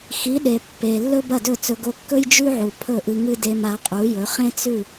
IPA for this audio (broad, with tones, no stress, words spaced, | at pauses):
xi˩˥ɗe˩ pːe˩ lːɵ˥bɐ˥˩dɵ˥˩t͡sɵ˧ ɡo˧kːɵ˥j d͡ʒʉ˥ʕu˩ pʰɵ˥˩ʔɨ˧ŋɨ˥ de˧ma˩˥qʼu˩˥jɵ˩˥ χẽ˥t͡sʉ˥˩